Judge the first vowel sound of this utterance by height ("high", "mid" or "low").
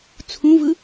high